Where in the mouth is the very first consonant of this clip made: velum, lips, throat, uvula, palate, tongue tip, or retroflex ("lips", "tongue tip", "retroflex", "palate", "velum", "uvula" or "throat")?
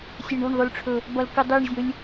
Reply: tongue tip